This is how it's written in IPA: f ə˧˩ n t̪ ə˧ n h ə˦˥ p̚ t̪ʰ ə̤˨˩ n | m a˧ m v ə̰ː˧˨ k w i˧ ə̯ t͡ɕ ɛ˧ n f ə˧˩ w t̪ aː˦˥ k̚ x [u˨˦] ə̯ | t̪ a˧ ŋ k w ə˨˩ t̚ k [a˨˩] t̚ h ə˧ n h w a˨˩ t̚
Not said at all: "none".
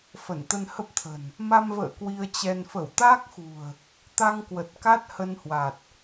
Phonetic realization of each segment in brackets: ṳ˨˩, a˦˥

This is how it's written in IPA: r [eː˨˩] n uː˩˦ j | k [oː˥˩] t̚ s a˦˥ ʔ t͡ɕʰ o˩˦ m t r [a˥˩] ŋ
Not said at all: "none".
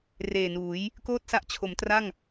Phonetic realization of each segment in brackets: eː˨˩, oː˥˩, a˥˩

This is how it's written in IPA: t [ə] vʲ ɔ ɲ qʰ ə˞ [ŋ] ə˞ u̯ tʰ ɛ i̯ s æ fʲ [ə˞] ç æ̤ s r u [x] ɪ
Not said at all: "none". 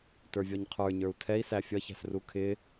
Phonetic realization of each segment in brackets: ə˞, ɲ, ʌ, kʰ

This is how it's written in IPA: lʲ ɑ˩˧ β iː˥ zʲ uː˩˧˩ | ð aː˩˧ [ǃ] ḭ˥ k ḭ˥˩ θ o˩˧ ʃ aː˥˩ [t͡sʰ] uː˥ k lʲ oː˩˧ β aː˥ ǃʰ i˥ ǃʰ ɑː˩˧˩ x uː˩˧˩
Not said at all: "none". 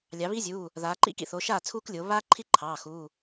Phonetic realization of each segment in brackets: ǃ, t͡sʰ

